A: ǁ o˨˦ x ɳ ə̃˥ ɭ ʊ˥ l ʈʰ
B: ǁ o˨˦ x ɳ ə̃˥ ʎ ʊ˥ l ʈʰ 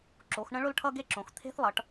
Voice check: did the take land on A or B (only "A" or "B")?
A